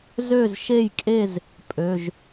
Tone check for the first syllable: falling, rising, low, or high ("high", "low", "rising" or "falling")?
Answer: falling